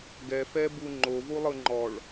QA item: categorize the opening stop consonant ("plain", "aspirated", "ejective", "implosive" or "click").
plain